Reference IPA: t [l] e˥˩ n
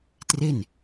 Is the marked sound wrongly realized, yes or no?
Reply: yes